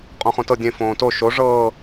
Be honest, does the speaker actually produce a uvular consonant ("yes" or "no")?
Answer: yes